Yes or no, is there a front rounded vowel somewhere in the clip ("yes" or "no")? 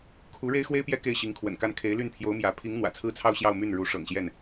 yes